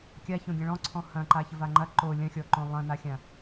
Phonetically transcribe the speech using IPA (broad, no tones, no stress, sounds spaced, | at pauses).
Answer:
kʲ a ç õ ɡʲ ɐ̃ ɭ ɔ̃ ǀʰ ɔ̃ h ɐ̃ ǃ a ç ə v a ŋ͡ǃ ɐ ǃ o lʲ ɐ̃ xʲ ɔ ǃ õ lˠ ɐ̃ n a xʲ ã